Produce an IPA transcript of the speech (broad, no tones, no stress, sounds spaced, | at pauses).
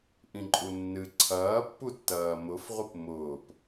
ʔ ĩ ǃʼ u nː ɨ ǀʰ ɐː pː u tː ɐː m ʊ f ʁʷ ɨ p m ʊː p